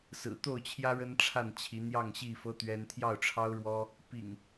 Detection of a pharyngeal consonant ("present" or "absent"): absent